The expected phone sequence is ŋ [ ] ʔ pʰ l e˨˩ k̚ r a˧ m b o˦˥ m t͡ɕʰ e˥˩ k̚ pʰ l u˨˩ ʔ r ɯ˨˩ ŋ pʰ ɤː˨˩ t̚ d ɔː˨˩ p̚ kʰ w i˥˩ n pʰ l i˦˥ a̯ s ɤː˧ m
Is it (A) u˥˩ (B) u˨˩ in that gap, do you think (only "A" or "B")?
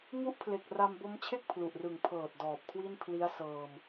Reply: A